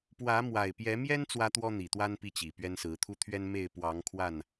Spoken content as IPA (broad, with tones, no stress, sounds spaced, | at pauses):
p w ä˨˦ m w a˨˩ ɪ̯ p j ɛ˨˦ m j ɛ˦ n t͡s w ä˦ t̪ w ɔ˦ n̪ i˨˩ t̪ w a˦ n p i˦ t͡ɕ i˨˩ p ɥ ɛ˦ n s ɹ̩˨˦ t̪ʰ u˦ t̪ʰ ɥ ɛ˦ n m e˥˨ ɪ̯ p w ɑ˨˦ ŋ kʰ w a˥˨ n